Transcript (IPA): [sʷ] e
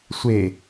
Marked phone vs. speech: correct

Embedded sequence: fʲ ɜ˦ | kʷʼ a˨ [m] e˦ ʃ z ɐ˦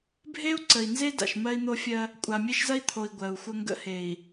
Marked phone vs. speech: incorrect: mʲ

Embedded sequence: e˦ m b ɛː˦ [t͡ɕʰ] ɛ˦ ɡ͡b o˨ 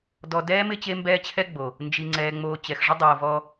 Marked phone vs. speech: correct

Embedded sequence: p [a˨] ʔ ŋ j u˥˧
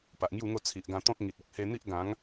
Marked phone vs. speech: correct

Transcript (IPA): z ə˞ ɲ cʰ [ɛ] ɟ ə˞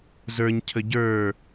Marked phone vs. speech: incorrect: ə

